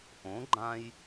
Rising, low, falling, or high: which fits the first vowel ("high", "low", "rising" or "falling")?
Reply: rising